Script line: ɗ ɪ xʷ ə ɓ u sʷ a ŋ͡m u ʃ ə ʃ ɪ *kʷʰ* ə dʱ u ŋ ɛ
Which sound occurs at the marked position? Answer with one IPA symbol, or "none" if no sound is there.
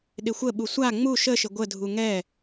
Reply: ɡʷ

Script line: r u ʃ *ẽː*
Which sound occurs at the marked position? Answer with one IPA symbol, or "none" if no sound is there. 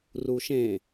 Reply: ẽ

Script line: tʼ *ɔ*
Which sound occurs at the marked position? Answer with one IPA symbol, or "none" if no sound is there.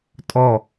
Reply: ɔ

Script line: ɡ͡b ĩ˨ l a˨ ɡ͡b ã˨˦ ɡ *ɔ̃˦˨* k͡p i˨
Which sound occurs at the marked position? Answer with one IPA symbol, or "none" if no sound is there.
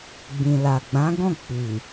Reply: ɔ̃˦˨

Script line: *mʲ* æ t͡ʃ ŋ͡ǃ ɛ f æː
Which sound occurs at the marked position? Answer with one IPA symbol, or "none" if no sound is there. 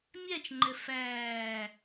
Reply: mʲ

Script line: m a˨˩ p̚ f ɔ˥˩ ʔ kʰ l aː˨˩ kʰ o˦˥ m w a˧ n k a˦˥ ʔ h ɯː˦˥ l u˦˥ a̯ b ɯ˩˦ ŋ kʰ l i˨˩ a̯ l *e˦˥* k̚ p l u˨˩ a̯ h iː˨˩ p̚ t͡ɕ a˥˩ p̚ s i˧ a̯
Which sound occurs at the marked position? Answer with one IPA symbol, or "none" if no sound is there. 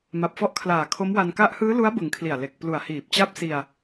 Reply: e˨˩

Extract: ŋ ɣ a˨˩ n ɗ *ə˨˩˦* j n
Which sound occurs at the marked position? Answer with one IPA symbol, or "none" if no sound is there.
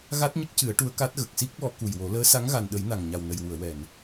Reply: ə˨˩˦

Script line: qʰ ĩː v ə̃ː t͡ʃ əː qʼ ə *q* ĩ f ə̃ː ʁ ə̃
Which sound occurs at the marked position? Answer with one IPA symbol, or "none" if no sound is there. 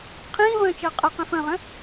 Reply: q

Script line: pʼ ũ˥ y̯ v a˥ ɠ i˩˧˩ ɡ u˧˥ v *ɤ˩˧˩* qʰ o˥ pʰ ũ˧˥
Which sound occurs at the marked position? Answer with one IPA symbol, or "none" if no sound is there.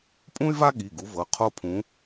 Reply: ɤ˩˧˩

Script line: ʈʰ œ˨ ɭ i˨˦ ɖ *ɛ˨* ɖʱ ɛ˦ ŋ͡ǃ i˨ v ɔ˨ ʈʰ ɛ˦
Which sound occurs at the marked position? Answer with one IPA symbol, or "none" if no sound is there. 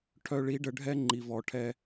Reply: ə˨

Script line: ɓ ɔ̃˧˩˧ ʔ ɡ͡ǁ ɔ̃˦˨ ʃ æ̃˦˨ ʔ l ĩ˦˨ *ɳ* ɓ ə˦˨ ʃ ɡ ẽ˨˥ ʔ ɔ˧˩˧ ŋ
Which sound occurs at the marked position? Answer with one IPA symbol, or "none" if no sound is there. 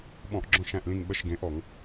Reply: ŋ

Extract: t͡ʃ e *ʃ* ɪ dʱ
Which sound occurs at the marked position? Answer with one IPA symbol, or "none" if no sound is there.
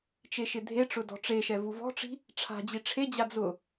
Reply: ʃ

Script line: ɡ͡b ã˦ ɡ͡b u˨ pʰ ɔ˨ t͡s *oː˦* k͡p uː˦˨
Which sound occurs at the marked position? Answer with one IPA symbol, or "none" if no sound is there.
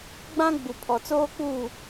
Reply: oː˦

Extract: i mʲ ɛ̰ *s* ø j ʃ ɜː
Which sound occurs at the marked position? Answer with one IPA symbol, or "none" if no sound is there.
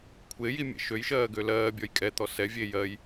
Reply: ʃ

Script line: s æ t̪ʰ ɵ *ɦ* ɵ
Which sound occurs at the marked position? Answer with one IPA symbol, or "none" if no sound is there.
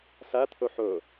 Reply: ħ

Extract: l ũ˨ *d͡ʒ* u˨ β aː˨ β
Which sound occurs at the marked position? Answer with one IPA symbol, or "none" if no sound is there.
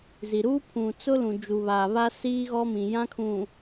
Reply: d͡ʒ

